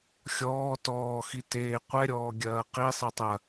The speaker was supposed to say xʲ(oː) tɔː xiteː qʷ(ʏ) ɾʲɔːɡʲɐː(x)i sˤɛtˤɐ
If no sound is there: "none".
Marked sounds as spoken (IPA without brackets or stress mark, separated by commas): ɔː, ɛ, q